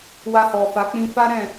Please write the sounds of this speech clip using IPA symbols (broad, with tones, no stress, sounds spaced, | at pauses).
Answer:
w a˧ h ɔ˨ f a˨˦ k͡p ĩ˧ f a˦ ɾ ɛ̃˦˨